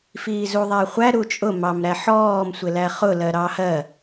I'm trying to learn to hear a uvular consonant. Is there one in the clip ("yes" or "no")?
yes